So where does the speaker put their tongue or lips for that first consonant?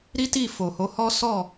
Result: tongue tip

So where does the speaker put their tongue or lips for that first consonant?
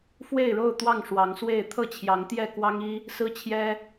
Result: lips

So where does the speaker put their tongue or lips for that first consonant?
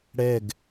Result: retroflex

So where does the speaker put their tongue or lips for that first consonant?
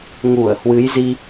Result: velum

